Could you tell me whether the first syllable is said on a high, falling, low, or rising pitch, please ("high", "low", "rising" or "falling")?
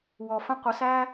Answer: low